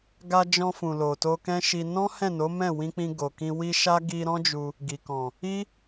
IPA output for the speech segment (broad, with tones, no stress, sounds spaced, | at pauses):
ɡ a˧ d͡ʒ ɔ̃˧ f ũ˨ l o˨ t o˧ k ɛ̃˦ ʃ i˧ n ɔ̃˦ h ɛ̃˦˨ n o˨˦ m ɛ̃˦˨ w ĩ˧ k͡p ĩ˧ ɡ o˨ k ĩ˧ w i˦ ʃ a˦ ɡ i˧ ɾ ɔ̃˦ d͡ʒ u˧ | ɡ i˨ k ɔ̃˨ | i˦